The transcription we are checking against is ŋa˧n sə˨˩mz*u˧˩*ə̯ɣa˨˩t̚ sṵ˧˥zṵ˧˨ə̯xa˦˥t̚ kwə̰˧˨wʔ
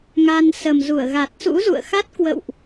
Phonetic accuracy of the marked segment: correct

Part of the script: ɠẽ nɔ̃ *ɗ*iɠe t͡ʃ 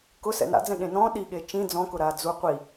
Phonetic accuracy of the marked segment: correct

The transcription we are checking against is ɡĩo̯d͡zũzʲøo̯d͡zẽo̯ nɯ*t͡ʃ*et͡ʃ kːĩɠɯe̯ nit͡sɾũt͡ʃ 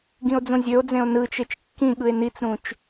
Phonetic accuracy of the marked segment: correct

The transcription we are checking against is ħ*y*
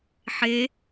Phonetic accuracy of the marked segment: incorrect: e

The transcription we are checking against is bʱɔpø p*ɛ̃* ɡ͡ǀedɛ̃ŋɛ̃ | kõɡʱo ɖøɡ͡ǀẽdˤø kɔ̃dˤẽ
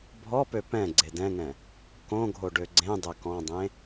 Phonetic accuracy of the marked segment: correct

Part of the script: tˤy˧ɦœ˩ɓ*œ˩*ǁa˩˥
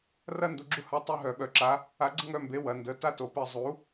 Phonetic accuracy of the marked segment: correct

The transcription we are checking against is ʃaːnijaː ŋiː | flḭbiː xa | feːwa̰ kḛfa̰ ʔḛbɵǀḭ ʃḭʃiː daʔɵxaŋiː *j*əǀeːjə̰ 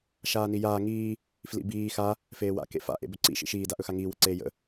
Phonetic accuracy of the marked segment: incorrect: w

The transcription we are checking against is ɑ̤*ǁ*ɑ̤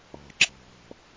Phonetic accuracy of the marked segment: correct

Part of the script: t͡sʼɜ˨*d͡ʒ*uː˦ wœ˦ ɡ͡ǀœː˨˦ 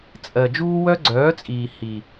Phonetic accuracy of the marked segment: correct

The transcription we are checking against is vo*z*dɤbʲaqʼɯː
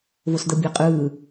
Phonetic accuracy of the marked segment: incorrect: s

